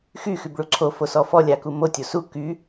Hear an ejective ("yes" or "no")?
no